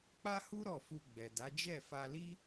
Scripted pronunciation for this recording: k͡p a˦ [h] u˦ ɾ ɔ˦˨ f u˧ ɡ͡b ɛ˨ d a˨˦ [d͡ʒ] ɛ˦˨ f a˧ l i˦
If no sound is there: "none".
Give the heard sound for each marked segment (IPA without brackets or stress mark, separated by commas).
h, d͡ʒ